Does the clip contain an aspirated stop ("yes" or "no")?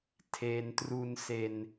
yes